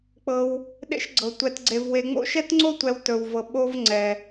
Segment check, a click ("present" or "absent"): present